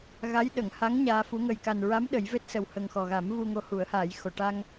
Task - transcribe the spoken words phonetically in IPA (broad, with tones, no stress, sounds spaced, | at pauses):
ɣ a˧˥ j ɗ ə˨˩˨ ŋ h a˧˥ ŋ ɲ aː˧ f u˧˥ ŋ ə˨˩ j k a˨˩ n ɹ a˧˥ m ɗ ə˨˩˦ j v e˦˥ t̚ s ə˨˩ w h ə˨˩ ŋ x ɔ˨˩ ɣ a˨˩˦ m v u˧ ŋ o˧˥ h u˨˩˦ ə̯ h a˨˩˦ j x o˨˩˨ ʈ a˧ ŋ